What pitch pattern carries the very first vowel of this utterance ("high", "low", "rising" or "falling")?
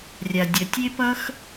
low